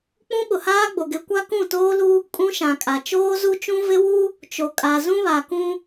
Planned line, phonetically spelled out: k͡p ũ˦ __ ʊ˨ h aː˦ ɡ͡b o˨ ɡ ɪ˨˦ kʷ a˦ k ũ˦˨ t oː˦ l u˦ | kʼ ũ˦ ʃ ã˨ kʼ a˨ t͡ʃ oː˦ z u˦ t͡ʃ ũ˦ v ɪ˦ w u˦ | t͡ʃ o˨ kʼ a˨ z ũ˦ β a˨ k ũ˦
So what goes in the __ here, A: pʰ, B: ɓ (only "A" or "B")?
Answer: B